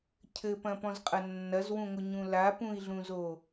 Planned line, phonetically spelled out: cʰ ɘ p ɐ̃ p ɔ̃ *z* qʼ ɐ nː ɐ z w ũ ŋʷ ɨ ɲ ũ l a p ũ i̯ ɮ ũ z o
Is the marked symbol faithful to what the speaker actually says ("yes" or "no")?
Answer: yes